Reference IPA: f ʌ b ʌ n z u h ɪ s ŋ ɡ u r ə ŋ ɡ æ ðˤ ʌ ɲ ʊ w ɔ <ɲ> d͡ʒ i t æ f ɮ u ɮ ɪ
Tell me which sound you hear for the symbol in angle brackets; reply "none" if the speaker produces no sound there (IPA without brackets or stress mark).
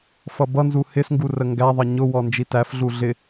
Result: n